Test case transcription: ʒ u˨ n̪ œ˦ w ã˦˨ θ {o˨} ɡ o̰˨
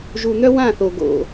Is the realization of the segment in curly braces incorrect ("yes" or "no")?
no